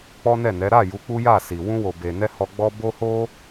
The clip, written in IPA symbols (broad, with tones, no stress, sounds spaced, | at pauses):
k͡p ɔ˦ n ɛ˦˨ n ɛ˨˦ ɾ a˦˨ j u˨˦ k͡p u˦ j a˦˨ s i˨ w ũ˧ w o˨ b e˨ n ɛ˧ h ɔ˧ ɡ͡b ɔ˦ b o˦ h o˦